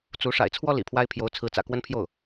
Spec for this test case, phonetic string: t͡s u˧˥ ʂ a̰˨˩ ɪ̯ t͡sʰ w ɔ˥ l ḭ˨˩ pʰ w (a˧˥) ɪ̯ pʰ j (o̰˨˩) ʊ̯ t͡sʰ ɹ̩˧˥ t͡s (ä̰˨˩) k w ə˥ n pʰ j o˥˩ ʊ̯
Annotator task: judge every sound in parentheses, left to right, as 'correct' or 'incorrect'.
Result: incorrect, incorrect, correct

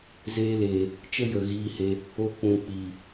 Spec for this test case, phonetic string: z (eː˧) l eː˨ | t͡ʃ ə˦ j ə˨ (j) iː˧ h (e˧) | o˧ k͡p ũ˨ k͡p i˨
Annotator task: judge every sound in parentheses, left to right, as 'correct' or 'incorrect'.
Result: correct, incorrect, correct

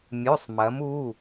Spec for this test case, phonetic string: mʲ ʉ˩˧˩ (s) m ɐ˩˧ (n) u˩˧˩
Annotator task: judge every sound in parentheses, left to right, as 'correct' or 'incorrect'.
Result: incorrect, incorrect

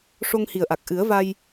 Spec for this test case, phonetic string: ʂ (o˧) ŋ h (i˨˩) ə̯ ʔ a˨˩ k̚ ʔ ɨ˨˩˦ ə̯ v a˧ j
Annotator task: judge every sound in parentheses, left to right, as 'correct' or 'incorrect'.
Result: correct, correct

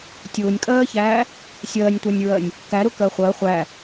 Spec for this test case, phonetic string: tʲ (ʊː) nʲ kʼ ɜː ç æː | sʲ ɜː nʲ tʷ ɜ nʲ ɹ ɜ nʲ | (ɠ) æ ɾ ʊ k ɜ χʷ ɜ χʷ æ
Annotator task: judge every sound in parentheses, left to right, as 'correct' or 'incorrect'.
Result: correct, incorrect

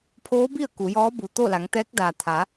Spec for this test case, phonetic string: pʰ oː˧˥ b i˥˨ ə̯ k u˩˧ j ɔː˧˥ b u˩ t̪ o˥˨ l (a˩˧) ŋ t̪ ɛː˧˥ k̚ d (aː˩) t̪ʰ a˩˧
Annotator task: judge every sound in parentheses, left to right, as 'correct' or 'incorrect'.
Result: correct, correct

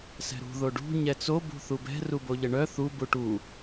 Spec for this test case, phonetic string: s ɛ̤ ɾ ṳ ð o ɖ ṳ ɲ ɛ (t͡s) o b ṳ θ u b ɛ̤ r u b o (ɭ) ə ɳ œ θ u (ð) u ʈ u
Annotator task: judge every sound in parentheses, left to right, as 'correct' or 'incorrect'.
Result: correct, incorrect, incorrect

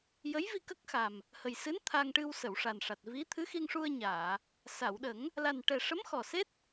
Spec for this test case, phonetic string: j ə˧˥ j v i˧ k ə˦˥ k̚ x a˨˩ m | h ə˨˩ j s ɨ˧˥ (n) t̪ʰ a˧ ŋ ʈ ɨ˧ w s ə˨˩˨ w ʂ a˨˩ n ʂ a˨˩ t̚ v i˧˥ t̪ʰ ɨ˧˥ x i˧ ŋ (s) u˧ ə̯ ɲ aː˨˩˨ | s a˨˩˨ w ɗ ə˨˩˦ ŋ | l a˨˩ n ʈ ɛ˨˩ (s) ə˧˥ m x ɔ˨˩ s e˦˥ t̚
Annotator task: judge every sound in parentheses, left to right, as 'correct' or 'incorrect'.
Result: correct, incorrect, incorrect

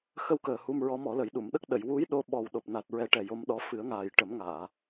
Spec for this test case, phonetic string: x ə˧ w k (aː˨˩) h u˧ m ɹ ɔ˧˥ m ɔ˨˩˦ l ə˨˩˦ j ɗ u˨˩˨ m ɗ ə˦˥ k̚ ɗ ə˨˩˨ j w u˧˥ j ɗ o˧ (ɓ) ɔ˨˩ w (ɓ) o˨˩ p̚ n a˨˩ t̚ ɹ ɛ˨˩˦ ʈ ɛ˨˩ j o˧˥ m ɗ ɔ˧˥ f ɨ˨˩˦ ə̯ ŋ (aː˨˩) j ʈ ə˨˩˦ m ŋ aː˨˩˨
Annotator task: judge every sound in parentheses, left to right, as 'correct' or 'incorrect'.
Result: incorrect, correct, incorrect, correct

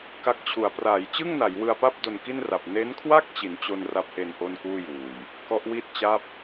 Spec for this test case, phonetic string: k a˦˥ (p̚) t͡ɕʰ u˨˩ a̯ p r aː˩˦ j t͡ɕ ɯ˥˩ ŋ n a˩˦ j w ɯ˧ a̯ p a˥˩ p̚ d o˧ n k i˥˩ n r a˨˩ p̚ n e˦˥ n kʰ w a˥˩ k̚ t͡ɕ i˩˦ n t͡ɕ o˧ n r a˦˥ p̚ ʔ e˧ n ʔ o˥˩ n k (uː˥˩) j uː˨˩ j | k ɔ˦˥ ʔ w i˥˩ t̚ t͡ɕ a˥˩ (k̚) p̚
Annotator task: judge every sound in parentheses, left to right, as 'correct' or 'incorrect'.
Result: incorrect, correct, incorrect

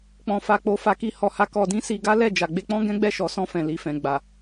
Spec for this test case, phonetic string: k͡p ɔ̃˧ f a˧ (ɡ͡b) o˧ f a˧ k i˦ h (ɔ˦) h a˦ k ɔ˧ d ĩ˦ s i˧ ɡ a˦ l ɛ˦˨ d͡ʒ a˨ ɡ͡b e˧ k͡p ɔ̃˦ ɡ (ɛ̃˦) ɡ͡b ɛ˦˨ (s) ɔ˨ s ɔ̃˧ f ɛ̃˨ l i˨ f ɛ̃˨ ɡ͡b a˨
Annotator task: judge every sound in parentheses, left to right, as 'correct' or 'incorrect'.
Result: incorrect, incorrect, correct, incorrect

